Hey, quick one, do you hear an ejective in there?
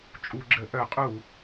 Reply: yes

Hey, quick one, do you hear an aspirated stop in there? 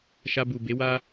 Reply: no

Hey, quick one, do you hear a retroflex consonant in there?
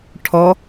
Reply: yes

